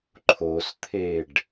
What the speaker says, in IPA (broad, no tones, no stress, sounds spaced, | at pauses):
ǃʰ o s t̪ʰ e ɖ